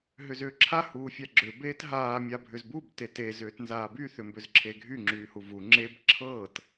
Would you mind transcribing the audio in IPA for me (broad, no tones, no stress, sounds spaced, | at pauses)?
ɦ ʏ z ʏː ǁʰ a h uː fʲ a ɡ͡ǁ ʏ b eː t ɦ aː mʲ a bʱ ʏ z b u b t e t e z ʏː t n z aː b y θ ʏ m b ʏ z ǁʰ e ɡʱ y ŋ͡ǁ yː h u v u ŋ͡ǁ e b ǁʰ ɤː t